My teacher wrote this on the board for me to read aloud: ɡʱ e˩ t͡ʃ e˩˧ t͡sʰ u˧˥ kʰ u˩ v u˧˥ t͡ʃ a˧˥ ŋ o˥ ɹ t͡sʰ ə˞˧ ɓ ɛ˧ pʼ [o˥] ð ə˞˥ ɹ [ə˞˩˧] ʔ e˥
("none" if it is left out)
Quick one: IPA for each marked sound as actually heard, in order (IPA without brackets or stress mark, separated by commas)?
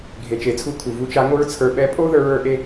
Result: o˥, ə˞˧˥